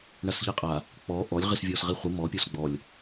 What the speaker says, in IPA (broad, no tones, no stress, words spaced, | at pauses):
ɳasʎiqʼa | k͡pɔ ʔɔlʲ ʁisvʲɔsʁiχʷi mɔ pʲɔsɡ͡bɔlʲ